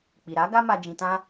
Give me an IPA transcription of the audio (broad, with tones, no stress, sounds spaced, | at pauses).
k͡p i˨ ɾ a˨˦ ɡ a˦ m a˧ d͡ʒ ĩ˧ t ã˦